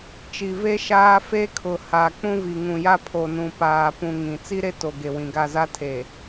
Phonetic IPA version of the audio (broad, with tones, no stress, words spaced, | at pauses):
t͡ʃi˨ve˦ ʃaː˦ fe˦kʰʊ˨ ha˨ k͡pũ˦vi˨ ŋũ˨ja˦pʰo˨nũ˨ paː˨pũ˨ ŋĩ˨ t͡si˦ɾe˦ to˨ɡe˨wĩ˨ɡa˦˨ za˦tʰe˨